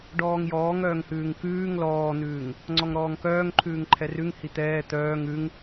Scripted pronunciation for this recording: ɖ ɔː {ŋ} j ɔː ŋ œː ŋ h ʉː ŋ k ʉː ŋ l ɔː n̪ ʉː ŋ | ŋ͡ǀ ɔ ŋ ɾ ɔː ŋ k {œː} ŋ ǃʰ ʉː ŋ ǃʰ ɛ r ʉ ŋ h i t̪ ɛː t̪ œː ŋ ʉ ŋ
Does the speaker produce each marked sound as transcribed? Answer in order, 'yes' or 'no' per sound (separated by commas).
yes, yes